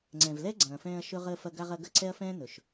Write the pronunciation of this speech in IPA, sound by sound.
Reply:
ŋ͡ǀ ɛ̃˨ v l ɛ˦ ɡ͡ǀ ɐ̃ː˨ f ɛ̃ː˧ ɐ̯ ʃ ɵ˦ ʁ əː˧ f ɐ˧ ɡ a˧ ʁ ɐ˧ ɡ ɐ˦ ǀ ɛ˦ ɐ̯ f ɛ̃ː˦ n ɵ˨ ʃ

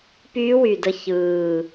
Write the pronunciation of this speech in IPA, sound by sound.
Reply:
p yː˦˥ w y˨˩ d ə˦˨ ç ɯː˨˩

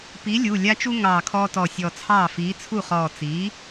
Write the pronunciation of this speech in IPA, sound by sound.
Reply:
p i˨˥ lʲ u˩˧˩ lʲ a˦ t͡ʃ u˦ ŋ ɑː˧˩ kʰ ɔː˦ t ɔ˧˩ sʲ ɔ˧˩ t͡sʰ ɑː˥˩ f iː˨˥ t͡sʰ u˥˩ χ ɔː˧˩ t͡s iː˨˥

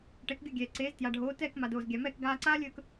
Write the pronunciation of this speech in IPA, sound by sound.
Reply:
ʈ ɛ˩˥ k ɡʲ o˥˩ ɡʲ ɛː˩ ǀ eː˩˥ z t j a˩ ɖʱ oː˩˥ t ɛː˥˩ k m a˩ d oː˩ z ɡʲ a˩ m ɛː˥˩ k ɡ aː˧ ǀ aː˥ lʲ ɵː˧ k

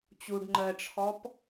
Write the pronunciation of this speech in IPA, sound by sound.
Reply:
t͡ɕ u ɖ ŋ͡ǃ ɜ ʈ͡ʂʰ ɔ p

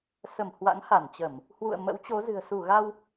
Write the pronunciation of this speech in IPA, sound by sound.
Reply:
s ə˧˩ m h w a̰˧˥ ŋ h a˧˩ n t͡ɕ ə˧˩˨ m | h w ṵ˧˨ ə̯ m ə̰˧˥ w t͡ɕ o˨˦ z ɨ̤˨˩ ə̯ s u˧˩ ɣ a˧ w

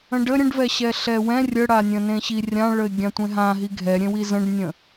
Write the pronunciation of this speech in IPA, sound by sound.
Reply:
ə̃ ɖ ə ɾʲ ə̃ ɖ v ɛ ɕ ɛ ɬ ɛ w ɛ̃ rʲ ə ɽ a nʲ ə̃ n ẽ ɕ i rʲ ã ɭ ə ɪ̯ ɡʲ ã tʷ ẽ ɦ ã ɦ i ɡʱ ɛ ɾʲ ẽ w i z ə̃ ɖ nʲ ə̃

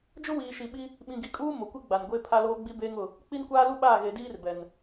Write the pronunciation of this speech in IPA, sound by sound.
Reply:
d͡ʒ ʊ˦ w iː˨ ʃ i˨ ɓ i˦ | ɓ ĩ˨ ɡ i˨ kʼ uː˦ m o˨ kʷ i˦ ɡ͡b a˨ n ɡʷ e˦ pʰ a˦ l oː˦ ɡ͡b i˦ b eː˦ ŋ ʊ˦˨ | k͡p i˦ n kʷ aː˦ l u˦ ɓ aː˦˨ ɣ e˨ d iː˦ r b ɛ˨ n

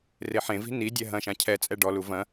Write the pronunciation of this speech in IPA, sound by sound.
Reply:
r e ħ ẽ v i̤ n i dʲ ɛ ɦ ɐ̃ ʃ ã cʰ ɛ t͡sʼ ɛ ɖ ɔ l u v ɐ̃

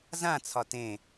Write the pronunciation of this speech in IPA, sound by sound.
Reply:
z ã t͡sʰ ɒ t ẽ

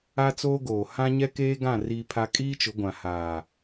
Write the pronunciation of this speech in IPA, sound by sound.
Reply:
a˦ t͡s oː˦ ɡ oː˨ h ã˦ ɲ ɛ˦ k eː˦ ɡ ã˦˨ r iː˦ pʰ a˦ kʼ iː˦ t͡ʃ ʊ˨˦ ɡʷ ã˨ h aː˨

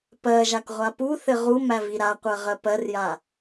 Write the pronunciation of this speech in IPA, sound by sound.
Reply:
p ɜ ʒ a k ʁʷ a p u θ ɘ ʁ u m æ v i ɾ a qʷ ɜ ʁ ɜ p ɜ r j a

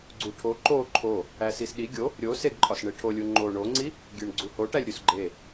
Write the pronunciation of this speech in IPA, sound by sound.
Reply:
ɡ͡ǀ u ʈʰ o ǃ o ǃʰ o | æ s i s ɗ i ɡʲ o | ɾʲ o s e ɡ ǃʼ ɒ s ɳ e ʈʰ o lʲ u ŋ͡ǃ o ɳ o ŋ͡ǀ i | ɡʲ e ɳ ɡ͡ǀ u h o ʈ æ lʲ ɾʲ u s ɡ͡ǃ e

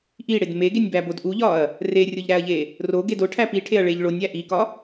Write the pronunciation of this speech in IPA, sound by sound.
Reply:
ʔ i ɽ e d m e ɡ e nʲ b æ b o d ʔ u ʎ ɒ ɐ̯ | r e rʲ o ʎ ɾ æ ɐ̯ ʎ e | r o ɡ e d o ʈʰ æ p i ʈʰ e ɐ̯ ɭ e ʎ ɭ o nʲ æ ʔ i k ɒ

